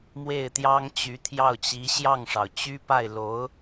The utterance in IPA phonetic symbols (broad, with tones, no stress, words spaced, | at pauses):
mwe˥˩ɪ̯t̪jɑ˥ŋ t͡ɕy˧˥t̪ʰjɑ˥˩ʊ̯t͡ɕi˧˥ ɕjɑ˥˩ŋʂɑ˩ʊ̯ t͡ɕy˥pa˥˩ɪ̯lo˧˥ʊ̯